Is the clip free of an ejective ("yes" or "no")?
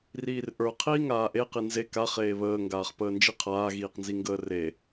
yes